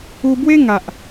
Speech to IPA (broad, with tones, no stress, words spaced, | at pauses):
u˧bwe˦ŋa˨ʔ